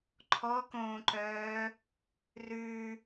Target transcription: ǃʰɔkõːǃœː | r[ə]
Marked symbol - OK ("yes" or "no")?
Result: no